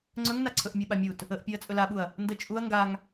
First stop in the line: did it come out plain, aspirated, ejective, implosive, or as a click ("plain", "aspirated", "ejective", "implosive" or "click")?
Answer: click